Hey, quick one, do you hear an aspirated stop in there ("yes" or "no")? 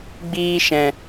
no